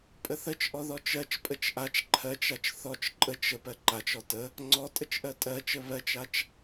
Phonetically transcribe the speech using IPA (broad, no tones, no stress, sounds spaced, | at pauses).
pʼ ə θ ə t͡ʃ ʔ ɔ ð ɔ t͡ʃ ɜ t͡ʃ pʼ ə t͡ʃ ʔ a t͡ʃ ǃʰ ɜ t͡ʃ a t͡ʃ θ ɔ t͡ʃ ǃʼ ə t͡ʃ ə p ɜ ǃ a t͡ʃ ɔ t ə | ŋ͡ǀ ɔ tʼ ə t͡ʃ ʔ ɜ tʼ ɜ t͡ʃ ə β ɜ t͡ʃ a t͡ʃ